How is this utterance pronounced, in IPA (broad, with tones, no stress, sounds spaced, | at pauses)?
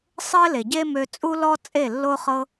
sˤ ɘ˦ l e˨ ɟ e˦ m ø˧ t͡sʼ u˦ l ɔ˦ t͡sʼ e˦˨ lː o˦ χ ɤ˦